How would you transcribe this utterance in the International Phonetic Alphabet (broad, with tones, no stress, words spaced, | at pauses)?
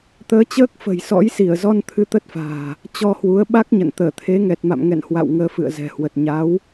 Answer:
t̪əː˨˦t͡ɕəː˦˥k̚fə̤˨˩j sɔ̰˧˥jsi˧˩ə̯zɔ˧n t̪ʰɨ˧t̪ə˦˥t̚fa̤ː˨˩ | t͡ɕɔ˧hwu˨˦ə̯ɓa˦˥k̚ɲə̰˧˨n t̪əː˧˩t̪ʰe˨˦ŋɛ˨˩t̚ma̰˧˨m ŋɛ̰˧˨nhwa̰˧˨w ŋəː˨˦ fɨ̰˧˨ə̯zɛ̤˨˩hwə˨˩t̚ ɲa˨˦w